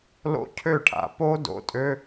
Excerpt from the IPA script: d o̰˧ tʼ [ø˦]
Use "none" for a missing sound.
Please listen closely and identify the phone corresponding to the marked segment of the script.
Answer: ø˦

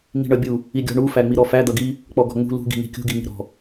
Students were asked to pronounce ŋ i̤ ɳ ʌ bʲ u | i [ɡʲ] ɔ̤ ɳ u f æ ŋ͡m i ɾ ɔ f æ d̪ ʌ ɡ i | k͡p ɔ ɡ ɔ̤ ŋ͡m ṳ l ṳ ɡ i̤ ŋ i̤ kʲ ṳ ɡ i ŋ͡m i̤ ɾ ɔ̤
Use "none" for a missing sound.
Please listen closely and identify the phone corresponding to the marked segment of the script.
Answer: ɡʲ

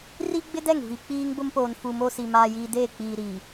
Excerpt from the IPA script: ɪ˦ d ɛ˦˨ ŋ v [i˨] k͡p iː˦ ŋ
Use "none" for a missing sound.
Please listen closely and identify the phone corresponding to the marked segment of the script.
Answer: i˨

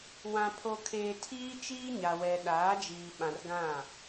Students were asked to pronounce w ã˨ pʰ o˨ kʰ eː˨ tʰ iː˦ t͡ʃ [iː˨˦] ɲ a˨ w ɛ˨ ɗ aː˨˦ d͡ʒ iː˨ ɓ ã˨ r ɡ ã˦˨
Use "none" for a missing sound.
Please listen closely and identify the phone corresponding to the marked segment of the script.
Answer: iː˦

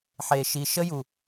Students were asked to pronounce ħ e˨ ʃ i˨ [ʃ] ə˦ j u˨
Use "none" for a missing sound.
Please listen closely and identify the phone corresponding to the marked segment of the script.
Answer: ʃ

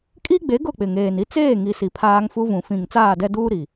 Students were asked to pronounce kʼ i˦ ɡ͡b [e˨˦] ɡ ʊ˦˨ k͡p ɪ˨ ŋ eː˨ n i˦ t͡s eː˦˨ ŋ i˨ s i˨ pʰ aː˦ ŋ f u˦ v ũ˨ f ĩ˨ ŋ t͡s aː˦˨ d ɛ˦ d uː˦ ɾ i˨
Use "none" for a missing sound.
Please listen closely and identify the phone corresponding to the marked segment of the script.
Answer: e˨˦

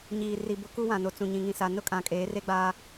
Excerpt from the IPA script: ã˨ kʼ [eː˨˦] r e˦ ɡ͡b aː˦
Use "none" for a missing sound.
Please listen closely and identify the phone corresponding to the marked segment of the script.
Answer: eː˨˦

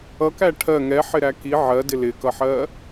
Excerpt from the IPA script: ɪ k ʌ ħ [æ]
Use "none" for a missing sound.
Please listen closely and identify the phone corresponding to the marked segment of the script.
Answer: ɜ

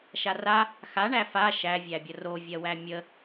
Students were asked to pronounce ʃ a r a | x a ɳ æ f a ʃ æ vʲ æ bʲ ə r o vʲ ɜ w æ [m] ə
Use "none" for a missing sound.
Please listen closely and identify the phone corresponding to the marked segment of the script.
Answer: mʲ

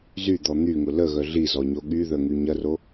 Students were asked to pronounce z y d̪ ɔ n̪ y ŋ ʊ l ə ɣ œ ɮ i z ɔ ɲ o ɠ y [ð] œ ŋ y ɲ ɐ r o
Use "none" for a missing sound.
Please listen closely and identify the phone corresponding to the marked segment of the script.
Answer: ð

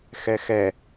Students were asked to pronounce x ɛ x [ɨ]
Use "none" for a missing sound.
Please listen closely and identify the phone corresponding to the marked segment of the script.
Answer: ɛ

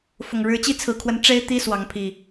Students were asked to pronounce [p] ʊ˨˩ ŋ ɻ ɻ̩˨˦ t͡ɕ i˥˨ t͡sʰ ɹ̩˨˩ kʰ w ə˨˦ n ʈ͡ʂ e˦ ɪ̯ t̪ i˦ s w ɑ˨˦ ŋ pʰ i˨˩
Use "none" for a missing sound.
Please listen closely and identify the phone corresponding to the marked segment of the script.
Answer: f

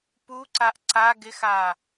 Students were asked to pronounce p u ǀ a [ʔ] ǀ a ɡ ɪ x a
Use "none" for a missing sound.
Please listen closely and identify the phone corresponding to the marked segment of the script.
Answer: ʔ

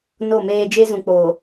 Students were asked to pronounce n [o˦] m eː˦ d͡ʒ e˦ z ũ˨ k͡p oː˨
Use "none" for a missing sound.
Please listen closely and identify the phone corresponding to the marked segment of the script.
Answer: o˦˨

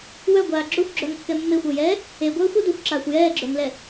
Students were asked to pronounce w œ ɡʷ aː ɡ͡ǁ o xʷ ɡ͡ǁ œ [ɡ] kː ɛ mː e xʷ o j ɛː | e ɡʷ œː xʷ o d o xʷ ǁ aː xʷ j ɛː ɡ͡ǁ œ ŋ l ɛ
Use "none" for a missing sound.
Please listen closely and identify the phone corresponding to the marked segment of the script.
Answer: ŋ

